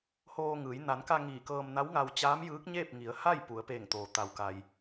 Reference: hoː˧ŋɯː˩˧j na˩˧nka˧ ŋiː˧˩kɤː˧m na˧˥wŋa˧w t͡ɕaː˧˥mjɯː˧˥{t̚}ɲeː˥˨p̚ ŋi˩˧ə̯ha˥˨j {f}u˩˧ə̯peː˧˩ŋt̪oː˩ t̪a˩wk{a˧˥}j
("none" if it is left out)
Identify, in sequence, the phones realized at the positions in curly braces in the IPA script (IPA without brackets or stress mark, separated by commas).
k̚, p, a˩